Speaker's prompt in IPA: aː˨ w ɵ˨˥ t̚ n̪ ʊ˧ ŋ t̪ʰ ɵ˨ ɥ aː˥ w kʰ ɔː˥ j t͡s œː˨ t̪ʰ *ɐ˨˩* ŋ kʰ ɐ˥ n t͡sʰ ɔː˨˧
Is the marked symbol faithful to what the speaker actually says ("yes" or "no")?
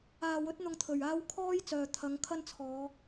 no